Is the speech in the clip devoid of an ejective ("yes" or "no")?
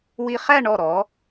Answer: yes